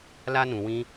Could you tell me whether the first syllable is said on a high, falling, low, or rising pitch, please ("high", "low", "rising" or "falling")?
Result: high